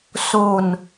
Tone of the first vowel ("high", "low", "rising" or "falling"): low